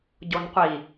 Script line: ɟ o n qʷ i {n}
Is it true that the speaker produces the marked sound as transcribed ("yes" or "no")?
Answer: no